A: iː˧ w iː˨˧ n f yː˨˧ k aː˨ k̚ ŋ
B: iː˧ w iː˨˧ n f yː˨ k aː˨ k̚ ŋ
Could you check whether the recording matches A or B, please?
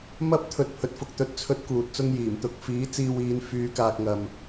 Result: A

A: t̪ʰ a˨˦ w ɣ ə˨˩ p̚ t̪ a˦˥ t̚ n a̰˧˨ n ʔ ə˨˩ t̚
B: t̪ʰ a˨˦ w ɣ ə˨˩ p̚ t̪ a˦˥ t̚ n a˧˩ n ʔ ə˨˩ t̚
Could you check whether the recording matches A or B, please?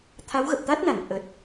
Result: B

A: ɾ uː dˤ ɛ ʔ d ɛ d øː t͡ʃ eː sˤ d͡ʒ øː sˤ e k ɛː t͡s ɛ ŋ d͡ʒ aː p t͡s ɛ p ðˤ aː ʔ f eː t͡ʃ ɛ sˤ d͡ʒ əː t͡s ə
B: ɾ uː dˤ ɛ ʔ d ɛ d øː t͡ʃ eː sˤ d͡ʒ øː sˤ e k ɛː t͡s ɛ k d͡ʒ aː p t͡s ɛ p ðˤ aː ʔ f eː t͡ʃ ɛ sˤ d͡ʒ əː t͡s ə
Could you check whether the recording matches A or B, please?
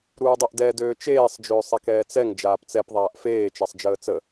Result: A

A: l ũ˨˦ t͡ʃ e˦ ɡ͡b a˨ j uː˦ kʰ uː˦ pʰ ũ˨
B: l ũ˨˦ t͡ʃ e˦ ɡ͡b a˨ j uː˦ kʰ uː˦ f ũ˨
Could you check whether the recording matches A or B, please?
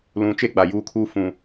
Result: B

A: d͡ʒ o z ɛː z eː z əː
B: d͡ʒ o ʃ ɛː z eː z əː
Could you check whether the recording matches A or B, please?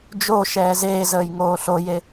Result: B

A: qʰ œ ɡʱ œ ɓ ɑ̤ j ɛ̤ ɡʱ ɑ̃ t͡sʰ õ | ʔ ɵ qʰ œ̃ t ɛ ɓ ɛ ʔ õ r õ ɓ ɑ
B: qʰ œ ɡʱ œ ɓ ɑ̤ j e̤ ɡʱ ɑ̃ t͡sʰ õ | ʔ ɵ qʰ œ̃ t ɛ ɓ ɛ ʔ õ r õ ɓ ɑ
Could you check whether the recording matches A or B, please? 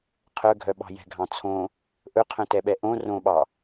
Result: A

